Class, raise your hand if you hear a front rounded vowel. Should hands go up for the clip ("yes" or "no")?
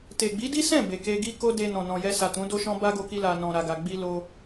no